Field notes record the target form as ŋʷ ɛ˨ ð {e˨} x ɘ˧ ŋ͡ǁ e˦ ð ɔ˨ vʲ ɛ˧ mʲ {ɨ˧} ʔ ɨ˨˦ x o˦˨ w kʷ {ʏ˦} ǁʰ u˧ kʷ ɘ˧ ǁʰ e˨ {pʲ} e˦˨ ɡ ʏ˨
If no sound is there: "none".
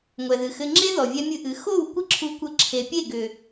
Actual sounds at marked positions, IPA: ɨ˨, ɨ˧, ɪ˦, pʲ

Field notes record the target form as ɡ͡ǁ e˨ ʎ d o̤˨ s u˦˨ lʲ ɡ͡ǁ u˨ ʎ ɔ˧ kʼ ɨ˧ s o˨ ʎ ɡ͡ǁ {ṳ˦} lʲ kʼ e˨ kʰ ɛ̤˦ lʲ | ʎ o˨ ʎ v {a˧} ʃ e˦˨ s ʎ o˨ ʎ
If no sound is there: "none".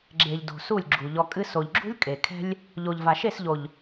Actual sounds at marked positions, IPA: ṳ˦, a˨

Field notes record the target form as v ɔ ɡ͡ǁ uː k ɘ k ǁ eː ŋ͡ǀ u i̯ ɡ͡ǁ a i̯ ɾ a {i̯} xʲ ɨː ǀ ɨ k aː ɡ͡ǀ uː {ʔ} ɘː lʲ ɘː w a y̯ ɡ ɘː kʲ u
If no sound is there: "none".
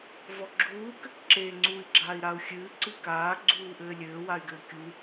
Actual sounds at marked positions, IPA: u̯, ʔ

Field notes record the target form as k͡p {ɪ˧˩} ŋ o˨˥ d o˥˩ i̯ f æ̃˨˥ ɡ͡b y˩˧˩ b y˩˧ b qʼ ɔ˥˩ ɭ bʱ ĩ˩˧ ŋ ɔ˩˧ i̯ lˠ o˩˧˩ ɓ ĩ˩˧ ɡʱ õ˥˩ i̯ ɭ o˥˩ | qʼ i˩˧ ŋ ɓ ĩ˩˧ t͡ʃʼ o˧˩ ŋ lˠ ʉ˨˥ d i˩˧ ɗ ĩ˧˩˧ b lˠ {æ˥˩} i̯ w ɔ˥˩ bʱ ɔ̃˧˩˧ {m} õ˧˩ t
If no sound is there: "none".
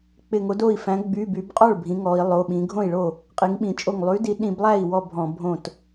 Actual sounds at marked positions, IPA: ɪ˧˩, æ˥˩, bʱ

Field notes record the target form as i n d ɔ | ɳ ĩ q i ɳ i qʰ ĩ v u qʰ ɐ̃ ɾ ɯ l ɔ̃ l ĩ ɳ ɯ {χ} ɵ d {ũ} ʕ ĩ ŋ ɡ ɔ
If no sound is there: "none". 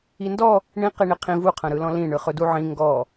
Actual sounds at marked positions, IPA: χ, u

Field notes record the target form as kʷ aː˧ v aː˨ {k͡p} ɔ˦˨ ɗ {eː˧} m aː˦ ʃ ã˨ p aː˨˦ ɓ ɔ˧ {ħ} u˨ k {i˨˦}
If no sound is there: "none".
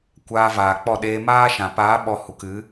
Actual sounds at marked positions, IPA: k͡p, eː˧, h, ɨ˨˦

